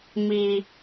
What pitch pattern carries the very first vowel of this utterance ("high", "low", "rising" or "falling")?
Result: low